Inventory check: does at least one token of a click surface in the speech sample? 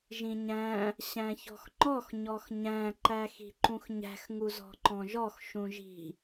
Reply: yes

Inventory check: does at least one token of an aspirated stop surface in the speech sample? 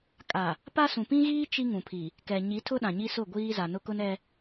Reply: yes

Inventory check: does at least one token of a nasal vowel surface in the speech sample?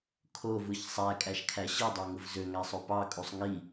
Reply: no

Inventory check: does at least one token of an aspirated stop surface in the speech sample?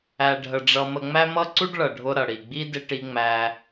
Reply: no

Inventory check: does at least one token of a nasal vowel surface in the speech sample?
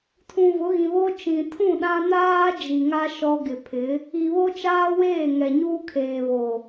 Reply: yes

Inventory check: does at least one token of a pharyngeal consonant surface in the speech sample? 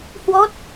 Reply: no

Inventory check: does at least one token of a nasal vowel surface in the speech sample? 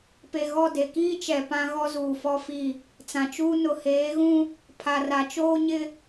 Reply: yes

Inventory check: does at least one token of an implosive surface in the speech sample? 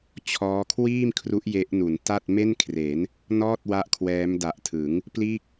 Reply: no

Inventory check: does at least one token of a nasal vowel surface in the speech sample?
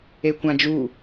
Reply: yes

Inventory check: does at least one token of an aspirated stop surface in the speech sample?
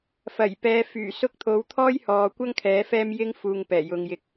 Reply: yes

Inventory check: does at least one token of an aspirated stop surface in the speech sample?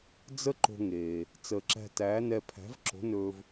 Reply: yes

